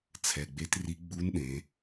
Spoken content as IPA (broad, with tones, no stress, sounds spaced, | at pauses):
t͡sʰ ɛ˩˧˩ ɡ͡b e˧˥ t r i˧˥ ɡ͡b u˧˥ n ɗ ẽ˩˧